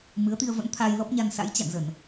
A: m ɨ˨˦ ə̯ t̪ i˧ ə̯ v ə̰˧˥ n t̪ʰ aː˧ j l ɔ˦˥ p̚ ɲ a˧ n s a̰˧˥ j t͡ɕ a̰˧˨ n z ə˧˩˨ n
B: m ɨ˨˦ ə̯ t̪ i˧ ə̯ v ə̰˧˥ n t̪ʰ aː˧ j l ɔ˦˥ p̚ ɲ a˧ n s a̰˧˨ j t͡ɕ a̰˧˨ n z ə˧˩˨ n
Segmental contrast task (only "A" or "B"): A